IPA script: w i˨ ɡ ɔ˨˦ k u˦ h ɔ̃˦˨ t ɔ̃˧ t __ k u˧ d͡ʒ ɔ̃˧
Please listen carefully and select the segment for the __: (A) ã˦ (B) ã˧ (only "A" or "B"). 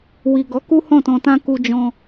A